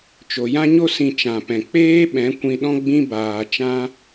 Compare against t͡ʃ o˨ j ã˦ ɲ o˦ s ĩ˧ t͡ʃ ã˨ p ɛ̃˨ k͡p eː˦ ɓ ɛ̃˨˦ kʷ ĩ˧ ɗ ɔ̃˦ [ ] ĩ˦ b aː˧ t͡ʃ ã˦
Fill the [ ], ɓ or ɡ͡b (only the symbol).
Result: ɡ͡b